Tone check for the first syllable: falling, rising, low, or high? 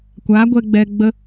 rising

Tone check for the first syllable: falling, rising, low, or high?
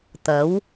rising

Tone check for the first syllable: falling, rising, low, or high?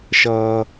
low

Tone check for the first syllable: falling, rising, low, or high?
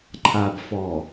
low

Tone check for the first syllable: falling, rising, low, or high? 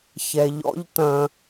low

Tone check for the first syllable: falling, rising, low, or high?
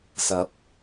rising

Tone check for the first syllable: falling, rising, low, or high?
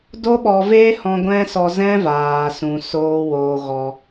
high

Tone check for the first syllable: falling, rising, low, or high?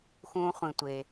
low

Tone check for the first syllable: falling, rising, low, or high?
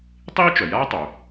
high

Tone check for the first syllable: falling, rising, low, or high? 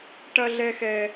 high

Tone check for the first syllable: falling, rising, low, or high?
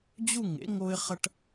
falling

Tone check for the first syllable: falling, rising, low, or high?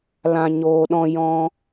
low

